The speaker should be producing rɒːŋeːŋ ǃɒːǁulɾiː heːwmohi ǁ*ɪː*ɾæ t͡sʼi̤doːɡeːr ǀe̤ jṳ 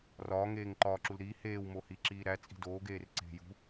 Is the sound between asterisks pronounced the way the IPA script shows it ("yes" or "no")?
no